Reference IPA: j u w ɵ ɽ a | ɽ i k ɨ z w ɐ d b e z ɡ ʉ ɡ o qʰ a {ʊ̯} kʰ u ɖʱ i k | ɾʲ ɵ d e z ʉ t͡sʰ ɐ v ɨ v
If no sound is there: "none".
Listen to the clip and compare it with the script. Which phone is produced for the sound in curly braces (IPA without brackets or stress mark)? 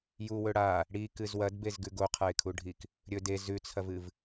ɪ̯